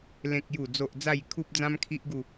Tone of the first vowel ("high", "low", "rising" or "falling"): low